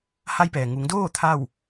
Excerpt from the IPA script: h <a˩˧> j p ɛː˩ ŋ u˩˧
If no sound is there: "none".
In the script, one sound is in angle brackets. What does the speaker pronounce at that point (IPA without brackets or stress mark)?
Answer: a˧